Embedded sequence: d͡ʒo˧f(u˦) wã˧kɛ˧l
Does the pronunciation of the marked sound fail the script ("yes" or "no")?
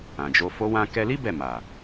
yes